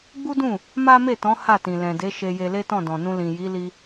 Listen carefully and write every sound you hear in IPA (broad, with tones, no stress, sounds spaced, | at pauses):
ɡ͡b u˦ d ũ˦˨ | m a˦ m e˦˨ t ɔ̃˨˦ h a˦˨ t ĩ˨ l ɛ̃˨ d e˨˦ ʃ e˧ j e˧ l e˦ t ɔ̃˦˨ d ɔ̃˨ n ũ˧ l ĩ˨ j i˨˦ l i˧